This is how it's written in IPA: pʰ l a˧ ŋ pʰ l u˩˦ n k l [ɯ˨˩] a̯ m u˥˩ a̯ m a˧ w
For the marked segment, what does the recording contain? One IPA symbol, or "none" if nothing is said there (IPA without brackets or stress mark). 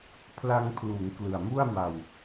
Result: ɯ˨˩